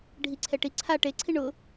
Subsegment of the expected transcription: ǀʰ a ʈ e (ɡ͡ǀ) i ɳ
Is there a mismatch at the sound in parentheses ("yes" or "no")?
yes